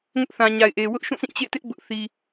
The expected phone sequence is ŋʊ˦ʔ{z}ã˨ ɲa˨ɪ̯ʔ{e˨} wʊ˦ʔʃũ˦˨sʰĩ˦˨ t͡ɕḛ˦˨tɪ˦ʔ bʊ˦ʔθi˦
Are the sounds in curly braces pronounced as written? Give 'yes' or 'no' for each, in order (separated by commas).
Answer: no, yes